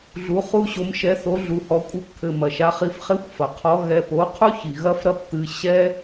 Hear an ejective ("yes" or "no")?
yes